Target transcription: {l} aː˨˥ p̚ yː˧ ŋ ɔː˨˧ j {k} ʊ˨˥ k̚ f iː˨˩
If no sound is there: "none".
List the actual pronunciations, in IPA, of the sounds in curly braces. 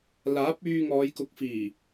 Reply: l, k

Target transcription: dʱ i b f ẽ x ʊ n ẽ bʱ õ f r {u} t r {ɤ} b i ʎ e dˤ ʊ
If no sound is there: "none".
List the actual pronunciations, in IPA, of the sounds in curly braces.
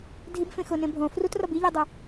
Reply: u, ɔ

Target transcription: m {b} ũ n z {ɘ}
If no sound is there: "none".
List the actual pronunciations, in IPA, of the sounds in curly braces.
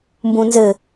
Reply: b, ɘ

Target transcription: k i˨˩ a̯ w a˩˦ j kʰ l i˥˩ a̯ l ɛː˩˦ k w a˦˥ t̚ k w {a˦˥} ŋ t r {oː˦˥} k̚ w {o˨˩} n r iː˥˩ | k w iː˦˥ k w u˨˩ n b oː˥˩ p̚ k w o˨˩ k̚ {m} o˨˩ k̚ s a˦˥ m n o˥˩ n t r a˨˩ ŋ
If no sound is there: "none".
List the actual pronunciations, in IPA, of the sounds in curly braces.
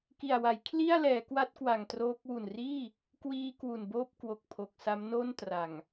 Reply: a˨˩, oː˦˥, u˨˩, pʰ

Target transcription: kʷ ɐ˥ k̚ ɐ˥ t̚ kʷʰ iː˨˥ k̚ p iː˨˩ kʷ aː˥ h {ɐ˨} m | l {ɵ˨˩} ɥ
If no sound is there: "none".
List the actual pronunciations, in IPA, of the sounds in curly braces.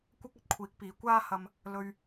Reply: ɐ˧, ɵ˧

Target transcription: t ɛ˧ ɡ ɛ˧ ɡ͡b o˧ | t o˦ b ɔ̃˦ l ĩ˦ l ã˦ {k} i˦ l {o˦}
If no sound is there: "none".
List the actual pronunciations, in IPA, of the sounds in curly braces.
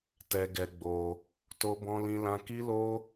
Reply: k, o˦

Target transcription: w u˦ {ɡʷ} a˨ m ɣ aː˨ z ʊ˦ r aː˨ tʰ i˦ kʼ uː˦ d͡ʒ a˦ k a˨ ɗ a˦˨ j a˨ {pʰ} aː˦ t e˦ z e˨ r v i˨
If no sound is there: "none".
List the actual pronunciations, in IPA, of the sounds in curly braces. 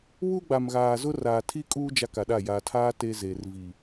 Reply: ɡ͡b, tʰ

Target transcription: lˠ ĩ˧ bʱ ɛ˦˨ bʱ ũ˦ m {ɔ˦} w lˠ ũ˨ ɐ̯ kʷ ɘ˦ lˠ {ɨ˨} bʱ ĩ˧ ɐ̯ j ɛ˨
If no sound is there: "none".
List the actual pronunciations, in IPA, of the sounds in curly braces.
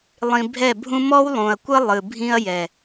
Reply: ɔ˦, ɨ˨

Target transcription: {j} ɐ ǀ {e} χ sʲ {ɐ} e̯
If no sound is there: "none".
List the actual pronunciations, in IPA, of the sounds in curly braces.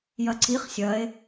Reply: j, i, ɐ

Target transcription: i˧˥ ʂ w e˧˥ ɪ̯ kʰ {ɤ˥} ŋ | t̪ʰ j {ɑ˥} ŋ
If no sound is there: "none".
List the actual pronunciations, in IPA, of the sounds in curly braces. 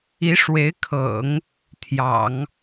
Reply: ɤ̰˨˩˦, ɑ̰˨˩˦

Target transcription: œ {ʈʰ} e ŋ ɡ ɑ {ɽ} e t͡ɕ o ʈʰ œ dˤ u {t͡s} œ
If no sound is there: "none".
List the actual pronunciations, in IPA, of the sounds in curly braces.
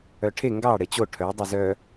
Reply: ʈʰ, ɽ, z

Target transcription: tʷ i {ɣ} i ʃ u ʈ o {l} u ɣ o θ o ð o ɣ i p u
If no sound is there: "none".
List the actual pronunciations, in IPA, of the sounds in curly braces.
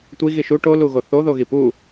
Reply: ɣ, l

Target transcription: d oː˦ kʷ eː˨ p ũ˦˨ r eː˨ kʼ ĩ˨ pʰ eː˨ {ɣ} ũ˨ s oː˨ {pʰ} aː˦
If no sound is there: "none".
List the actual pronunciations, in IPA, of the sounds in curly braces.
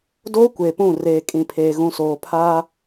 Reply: ɣ, pʰ

